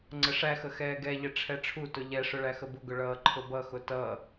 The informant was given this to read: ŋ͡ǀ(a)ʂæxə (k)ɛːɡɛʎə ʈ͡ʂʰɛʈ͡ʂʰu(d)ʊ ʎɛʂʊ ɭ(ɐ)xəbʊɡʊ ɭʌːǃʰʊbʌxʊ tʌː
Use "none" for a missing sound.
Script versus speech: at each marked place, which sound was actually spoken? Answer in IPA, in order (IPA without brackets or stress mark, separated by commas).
ə, x, t, æ